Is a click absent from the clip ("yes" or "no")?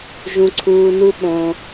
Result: no